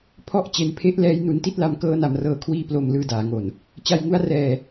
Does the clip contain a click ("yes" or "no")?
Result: no